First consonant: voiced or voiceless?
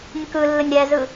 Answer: voiced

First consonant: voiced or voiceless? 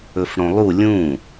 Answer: voiceless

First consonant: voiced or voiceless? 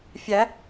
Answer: voiceless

